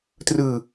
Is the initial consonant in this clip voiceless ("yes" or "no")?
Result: yes